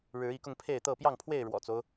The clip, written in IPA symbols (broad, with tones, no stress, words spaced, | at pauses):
ɻɻ̩˨˦i˨˦kʊ˧ŋ pʰe˥˨ɪ̯t̪ɤ˥˨ pjɑ˥˨ŋpʰwe˥˨ɪ̯ ɻwɔ̰˨˩t͡so˦ʊ̯